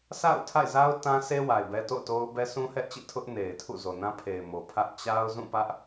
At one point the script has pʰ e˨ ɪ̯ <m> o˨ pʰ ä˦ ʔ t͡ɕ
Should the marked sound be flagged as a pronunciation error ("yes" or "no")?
no